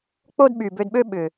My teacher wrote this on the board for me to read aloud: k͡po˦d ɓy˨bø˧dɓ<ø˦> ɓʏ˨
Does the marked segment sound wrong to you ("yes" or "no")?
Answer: no